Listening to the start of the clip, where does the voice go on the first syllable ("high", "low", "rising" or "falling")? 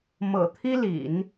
low